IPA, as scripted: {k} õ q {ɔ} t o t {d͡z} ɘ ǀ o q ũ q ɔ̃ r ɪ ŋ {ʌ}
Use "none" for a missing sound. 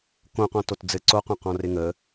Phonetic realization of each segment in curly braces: k, ɔ̃, d͡z, ə

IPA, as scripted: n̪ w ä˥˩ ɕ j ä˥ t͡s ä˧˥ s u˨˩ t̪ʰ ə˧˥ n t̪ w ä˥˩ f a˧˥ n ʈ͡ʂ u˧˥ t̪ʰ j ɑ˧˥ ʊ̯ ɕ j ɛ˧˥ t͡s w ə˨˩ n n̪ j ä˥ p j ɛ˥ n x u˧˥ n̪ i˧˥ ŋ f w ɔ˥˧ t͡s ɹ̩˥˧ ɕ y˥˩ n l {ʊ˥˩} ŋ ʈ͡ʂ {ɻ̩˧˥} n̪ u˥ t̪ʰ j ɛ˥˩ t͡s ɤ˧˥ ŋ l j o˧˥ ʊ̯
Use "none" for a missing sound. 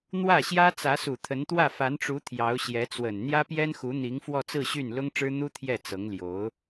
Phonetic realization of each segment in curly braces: ʊ˥, ɻ̩˥

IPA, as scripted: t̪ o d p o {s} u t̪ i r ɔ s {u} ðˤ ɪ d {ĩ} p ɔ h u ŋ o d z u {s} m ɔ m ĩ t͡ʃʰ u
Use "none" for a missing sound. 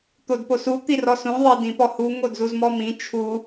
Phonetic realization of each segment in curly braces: s, ũ, ĩ, z

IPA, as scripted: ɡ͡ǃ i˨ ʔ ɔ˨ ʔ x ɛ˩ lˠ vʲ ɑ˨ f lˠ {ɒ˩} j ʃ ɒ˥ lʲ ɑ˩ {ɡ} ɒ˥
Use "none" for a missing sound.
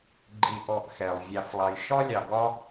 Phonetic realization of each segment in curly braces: ɑ˩, ɡ

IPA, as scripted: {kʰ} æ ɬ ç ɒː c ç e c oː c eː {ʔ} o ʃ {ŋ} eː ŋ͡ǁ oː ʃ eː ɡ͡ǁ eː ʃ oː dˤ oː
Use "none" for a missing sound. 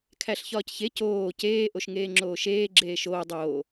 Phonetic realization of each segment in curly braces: kʰ, ʔ, ŋ

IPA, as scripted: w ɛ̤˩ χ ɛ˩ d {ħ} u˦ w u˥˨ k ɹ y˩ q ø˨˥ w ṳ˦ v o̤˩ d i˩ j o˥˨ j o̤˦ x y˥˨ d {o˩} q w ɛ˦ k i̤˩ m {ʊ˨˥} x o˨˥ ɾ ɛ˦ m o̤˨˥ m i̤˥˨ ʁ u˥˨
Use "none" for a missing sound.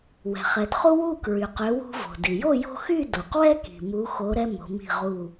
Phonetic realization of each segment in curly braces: χ, o˩, u˨˥

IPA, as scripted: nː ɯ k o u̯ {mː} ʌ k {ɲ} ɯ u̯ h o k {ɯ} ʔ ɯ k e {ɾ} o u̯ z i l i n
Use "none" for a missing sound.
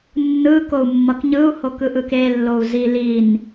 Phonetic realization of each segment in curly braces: mː, ɲ, ɯ, lː

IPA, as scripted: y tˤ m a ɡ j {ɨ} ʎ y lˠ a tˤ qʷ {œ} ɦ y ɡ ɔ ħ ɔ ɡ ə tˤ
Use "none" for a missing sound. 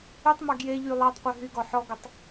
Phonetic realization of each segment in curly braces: e, œ

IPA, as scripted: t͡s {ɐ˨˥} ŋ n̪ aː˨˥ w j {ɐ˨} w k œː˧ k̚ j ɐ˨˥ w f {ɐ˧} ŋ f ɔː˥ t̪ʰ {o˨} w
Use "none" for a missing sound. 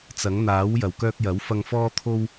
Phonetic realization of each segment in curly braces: ɐ˨˥, ɐ˨, ɐ˧, o˥

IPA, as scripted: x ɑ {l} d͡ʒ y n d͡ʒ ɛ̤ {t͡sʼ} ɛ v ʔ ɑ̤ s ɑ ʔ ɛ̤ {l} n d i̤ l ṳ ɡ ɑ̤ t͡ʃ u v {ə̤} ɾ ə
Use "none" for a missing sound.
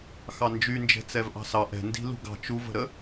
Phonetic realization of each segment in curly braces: n, t͡s, none, ə̤

